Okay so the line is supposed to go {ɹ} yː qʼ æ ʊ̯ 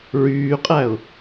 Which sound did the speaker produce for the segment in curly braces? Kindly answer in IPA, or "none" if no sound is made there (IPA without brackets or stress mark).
ɹ